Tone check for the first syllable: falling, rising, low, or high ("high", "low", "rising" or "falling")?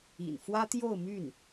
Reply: low